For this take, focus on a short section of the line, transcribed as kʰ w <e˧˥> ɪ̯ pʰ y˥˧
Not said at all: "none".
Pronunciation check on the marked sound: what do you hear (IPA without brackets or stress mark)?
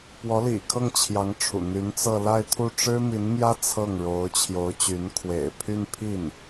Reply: ḛ˨˩